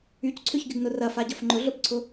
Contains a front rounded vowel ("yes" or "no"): yes